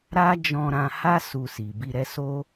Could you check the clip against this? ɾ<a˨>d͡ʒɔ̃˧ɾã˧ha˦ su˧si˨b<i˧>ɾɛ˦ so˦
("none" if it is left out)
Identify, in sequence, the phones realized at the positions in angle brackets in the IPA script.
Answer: a˦, i˧

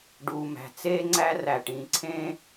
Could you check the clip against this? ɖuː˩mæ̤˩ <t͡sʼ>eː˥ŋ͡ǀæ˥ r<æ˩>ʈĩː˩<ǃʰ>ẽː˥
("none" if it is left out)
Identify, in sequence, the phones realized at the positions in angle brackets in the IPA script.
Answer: t͡s, æ˩, ǀʰ

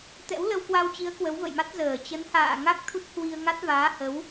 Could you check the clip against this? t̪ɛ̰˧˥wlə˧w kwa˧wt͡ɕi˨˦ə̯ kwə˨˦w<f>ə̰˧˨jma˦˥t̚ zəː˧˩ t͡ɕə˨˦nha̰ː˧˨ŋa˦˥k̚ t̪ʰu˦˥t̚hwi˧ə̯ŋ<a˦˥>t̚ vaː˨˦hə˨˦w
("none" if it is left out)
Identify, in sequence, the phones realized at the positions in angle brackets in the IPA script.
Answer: v, a˦˥

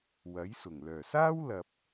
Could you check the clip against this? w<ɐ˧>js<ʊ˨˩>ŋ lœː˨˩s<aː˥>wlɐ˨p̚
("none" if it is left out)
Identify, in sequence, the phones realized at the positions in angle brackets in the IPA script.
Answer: ɐ˨˥, ʊ˨˩, aː˥

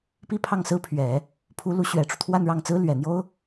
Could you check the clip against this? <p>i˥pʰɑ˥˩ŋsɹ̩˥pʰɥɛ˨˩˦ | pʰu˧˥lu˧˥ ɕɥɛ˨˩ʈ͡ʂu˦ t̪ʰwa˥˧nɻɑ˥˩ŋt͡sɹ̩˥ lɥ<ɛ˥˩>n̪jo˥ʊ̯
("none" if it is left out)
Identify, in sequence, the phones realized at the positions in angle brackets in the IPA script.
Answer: p, ɛ˨˩

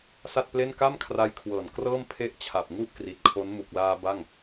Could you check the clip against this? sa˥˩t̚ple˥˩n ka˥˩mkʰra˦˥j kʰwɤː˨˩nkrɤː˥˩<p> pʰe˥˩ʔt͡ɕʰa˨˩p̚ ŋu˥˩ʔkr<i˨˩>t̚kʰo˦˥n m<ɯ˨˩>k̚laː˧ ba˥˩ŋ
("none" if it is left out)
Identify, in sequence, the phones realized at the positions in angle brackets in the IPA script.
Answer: m, i˨˩, u˨˩

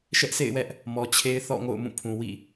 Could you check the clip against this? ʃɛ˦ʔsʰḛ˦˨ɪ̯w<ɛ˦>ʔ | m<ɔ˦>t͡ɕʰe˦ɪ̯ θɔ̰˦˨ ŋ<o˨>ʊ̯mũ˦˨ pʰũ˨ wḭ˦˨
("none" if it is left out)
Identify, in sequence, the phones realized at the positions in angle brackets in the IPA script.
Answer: ɛ˦, ɔ˨, o̰˦˨

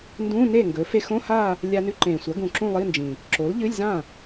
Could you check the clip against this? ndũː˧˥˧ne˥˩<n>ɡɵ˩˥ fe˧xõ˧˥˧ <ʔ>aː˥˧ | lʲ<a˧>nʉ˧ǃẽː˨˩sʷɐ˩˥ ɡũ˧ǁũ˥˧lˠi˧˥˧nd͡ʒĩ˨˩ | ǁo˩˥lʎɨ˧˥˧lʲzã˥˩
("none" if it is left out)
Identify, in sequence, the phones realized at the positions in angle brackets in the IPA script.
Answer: ŋ, h, a˧

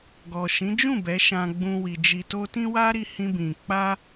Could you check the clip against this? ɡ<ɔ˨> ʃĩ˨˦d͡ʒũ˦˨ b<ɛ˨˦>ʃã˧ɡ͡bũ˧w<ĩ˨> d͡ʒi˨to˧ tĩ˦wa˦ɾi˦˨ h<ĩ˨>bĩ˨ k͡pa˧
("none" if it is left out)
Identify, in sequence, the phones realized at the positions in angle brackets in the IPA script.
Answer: ɔ˨, ɛ˨˦, i˨, ĩ˧

